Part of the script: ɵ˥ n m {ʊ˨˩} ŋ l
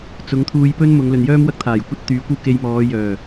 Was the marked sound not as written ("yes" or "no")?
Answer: yes